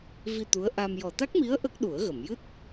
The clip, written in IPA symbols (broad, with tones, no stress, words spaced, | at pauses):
vi˧ t̪u˧˥ə̯ʔa˧m jɔ˨˩t̪a˦˥k̚mi˧˥ə̯ ʔə˦˥k̚ ɗu˨˩˦ə̯ɣə˨˩˨m jɨ˦˥t̚